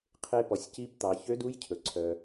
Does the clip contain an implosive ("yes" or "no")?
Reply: no